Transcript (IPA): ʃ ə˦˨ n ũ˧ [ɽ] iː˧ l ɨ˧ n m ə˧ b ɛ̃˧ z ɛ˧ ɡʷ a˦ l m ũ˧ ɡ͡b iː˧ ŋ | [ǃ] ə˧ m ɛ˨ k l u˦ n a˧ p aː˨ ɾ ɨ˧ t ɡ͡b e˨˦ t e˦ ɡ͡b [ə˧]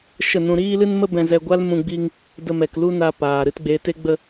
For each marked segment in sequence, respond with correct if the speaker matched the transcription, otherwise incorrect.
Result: incorrect: ɾ, incorrect: d, correct

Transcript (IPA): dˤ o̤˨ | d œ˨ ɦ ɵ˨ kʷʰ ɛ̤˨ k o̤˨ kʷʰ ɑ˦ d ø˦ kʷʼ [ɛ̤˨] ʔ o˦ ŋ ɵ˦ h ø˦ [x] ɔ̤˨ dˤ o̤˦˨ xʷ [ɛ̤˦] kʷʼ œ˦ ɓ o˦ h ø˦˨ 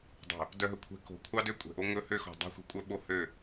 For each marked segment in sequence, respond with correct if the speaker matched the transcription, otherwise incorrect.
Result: correct, correct, correct

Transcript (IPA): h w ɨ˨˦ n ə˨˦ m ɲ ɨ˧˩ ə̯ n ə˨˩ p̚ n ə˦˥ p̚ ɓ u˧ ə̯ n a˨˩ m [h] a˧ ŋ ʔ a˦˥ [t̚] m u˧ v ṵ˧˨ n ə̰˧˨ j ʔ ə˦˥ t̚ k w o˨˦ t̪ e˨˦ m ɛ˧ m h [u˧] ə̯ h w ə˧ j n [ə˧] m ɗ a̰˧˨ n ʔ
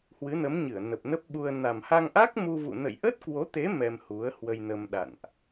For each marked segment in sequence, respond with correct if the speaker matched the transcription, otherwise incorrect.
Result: correct, incorrect: k̚, incorrect: u˨˦, correct

